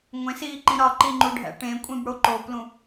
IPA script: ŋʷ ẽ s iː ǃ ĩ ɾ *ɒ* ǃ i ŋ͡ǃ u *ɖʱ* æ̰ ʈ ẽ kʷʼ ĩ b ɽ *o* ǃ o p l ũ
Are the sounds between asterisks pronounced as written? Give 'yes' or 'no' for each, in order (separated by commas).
yes, yes, yes